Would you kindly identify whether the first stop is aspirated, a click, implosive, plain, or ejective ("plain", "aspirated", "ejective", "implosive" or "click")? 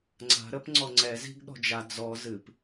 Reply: click